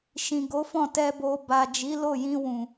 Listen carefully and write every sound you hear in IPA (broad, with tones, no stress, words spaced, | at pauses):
ʃĩ˨ɡo˨˦fɔ̃˦˨ tɛ˨bo˨ ba˨ d͡ʒi˨˦lo˦˨ jĩ˧wũ˨